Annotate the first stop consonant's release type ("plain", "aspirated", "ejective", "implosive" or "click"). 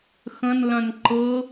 click